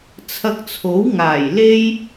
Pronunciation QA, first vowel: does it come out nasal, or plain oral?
oral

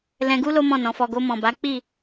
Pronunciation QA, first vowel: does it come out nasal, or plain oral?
nasal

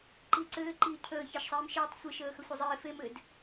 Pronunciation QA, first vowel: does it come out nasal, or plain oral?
oral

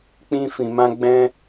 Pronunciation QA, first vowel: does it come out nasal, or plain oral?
nasal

